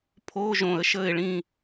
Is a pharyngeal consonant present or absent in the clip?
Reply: absent